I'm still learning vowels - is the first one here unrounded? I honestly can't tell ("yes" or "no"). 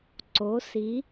no